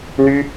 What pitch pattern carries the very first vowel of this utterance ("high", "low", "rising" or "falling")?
high